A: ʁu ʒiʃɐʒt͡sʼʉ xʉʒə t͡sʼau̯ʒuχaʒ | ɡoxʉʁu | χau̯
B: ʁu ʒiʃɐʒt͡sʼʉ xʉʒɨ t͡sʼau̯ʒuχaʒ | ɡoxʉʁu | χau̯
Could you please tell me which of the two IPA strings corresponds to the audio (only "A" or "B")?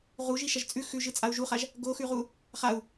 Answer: B